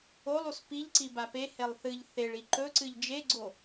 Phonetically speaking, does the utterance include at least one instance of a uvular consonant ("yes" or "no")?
no